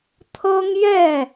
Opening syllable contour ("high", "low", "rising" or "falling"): high